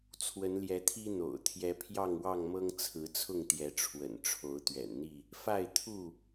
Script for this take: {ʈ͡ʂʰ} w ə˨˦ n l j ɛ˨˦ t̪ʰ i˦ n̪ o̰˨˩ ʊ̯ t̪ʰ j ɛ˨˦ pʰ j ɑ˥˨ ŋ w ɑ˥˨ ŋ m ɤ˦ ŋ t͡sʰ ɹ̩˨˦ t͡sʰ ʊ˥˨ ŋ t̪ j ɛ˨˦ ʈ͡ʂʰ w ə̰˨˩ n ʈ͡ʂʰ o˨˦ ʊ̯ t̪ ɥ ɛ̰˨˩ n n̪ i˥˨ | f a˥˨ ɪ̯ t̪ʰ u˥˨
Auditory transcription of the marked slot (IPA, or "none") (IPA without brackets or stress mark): t͡sʰ